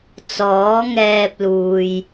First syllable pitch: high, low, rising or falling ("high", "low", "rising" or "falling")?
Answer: rising